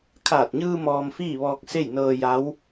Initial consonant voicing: voiceless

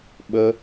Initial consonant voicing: voiced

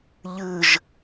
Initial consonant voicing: voiced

